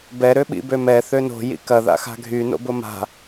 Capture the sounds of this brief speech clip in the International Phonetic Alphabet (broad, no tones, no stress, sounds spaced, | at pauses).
b ɛ ɾ ø ɓ ḭ b ø m ɛ θ ø n o̤ j ḭ k ɐ ð a̰ x a̤ ɡʱ y n o̰ b ʊ m a̤